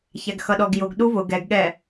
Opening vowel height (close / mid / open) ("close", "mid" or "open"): open